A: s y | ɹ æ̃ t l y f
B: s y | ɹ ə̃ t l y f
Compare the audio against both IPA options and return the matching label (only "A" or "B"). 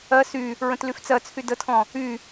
B